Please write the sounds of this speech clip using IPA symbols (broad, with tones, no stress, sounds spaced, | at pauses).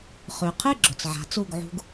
χ ʉ˩ qʰ ɨ˥˩ ɡ͡ǁ ɵ˩ t͡s ʕ a̤˩˥ t͡s u˥˩ ɡ ʕ ṳ˧ ɡ